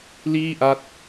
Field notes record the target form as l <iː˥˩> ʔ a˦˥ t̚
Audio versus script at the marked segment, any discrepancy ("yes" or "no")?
no